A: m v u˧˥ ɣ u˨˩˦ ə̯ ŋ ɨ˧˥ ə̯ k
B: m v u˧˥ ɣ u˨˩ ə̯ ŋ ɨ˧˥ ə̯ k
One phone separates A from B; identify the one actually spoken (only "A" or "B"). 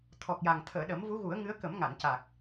A